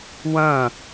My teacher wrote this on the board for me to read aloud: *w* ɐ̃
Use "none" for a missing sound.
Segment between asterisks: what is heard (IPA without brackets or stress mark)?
w